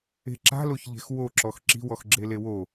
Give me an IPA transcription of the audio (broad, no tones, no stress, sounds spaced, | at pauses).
e̤ ǁ a̤ l o ç ʎ e̤ x w o ǁ ɔ x ǁ i̤ w ɔ x ɡ͡ǁ e l e w o